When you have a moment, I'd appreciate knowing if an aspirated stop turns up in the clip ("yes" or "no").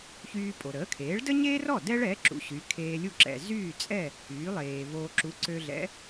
yes